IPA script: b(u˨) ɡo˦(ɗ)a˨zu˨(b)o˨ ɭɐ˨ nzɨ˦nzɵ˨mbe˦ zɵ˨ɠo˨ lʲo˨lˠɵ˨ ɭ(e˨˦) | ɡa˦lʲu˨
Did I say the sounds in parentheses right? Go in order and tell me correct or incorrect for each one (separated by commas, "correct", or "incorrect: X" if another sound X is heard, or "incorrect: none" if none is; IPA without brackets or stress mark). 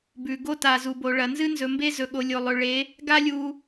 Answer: incorrect: ʉ˨, incorrect: t, correct, correct